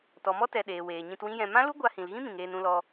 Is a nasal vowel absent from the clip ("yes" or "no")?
no